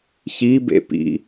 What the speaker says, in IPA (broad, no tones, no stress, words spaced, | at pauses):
çibḛ pḭ